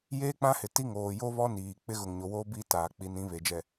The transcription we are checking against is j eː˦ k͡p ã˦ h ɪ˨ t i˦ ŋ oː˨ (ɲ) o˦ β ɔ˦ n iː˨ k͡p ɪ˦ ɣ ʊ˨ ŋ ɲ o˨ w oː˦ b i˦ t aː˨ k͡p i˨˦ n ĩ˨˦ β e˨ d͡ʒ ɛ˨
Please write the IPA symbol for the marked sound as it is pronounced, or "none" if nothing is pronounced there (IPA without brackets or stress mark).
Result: j